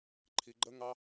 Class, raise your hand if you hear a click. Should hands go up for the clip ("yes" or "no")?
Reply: yes